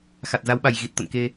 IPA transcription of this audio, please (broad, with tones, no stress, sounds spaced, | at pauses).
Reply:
x a˨˩ t̚ z a˨˦ w ɓ a˨˩ j ɣ i˨˩ t̚ t̪ ə̰˧˨ n k e˧